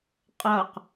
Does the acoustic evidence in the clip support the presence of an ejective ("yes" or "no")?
yes